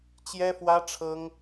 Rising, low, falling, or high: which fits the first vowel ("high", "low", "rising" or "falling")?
high